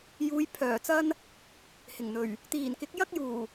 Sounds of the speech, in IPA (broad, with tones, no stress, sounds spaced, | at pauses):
j uː˨˧ j pʰ œː˨˩ t͡s ɐ˥ n | h ɪ˨˩ ŋ n̪ ɵ˨˩ ɥ | t̪ iː˨˩ n k ɪ˨˥ k̚ j ɐ˥ k̚ j uː˨˩